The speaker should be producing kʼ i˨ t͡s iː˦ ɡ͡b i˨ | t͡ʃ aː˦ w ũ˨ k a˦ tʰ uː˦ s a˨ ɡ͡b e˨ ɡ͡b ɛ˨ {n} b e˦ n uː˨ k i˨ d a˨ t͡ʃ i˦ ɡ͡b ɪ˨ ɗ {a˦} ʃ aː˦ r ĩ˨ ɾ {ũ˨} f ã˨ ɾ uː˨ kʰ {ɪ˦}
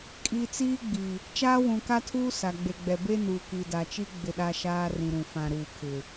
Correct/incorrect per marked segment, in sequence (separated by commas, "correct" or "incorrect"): incorrect, incorrect, correct, incorrect